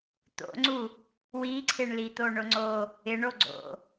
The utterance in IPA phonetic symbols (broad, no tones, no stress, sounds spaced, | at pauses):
t̪ o̰ ŋ͡ǀ u | w i ǀʰ ɪ ɳ l i t̪ o ɳ ʊ ŋ͡ǀ o | ɪ ɳ o ɡ͡ǀ o̰